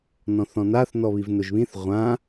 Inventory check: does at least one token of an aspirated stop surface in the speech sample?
no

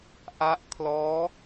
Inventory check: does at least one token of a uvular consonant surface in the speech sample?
no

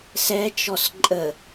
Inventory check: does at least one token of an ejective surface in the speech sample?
yes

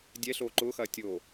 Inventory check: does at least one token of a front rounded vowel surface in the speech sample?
no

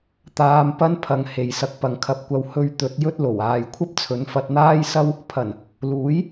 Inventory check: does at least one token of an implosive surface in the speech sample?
no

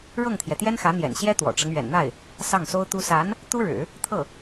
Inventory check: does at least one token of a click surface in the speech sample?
no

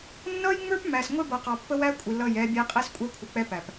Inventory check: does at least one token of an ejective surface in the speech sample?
yes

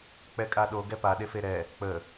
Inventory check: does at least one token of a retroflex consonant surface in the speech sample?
no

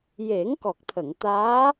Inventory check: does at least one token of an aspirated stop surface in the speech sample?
yes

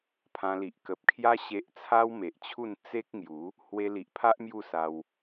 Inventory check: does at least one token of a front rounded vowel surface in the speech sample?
no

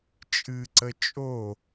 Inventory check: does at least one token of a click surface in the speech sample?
yes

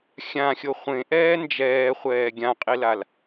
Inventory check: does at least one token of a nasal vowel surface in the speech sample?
yes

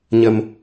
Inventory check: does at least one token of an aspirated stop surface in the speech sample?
no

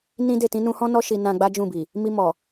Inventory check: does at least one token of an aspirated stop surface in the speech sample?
no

